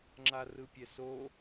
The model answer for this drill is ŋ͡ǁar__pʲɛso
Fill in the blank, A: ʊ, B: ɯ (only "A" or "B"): B